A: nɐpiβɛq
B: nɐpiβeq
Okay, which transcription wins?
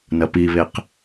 B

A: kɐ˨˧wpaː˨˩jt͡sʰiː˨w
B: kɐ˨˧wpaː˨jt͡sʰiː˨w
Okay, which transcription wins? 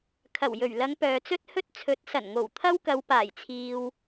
A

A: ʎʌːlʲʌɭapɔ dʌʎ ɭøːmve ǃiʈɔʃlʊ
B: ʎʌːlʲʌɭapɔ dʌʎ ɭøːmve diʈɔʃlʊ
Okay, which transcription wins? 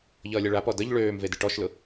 B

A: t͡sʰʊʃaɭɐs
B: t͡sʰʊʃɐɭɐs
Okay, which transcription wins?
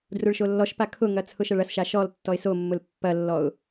B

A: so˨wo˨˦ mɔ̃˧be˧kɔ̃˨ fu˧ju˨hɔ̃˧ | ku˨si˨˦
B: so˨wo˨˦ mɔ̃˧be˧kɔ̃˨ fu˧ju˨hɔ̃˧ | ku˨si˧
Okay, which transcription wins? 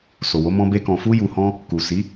A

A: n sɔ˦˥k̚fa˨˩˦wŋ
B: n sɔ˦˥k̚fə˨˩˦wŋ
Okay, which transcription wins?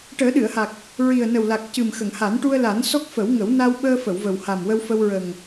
B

